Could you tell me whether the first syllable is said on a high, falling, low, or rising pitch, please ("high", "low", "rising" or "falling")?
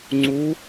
rising